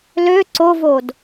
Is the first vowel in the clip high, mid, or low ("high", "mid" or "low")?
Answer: mid